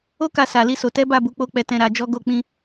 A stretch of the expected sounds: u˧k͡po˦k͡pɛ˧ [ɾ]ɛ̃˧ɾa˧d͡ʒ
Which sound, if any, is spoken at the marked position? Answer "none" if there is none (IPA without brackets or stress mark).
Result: t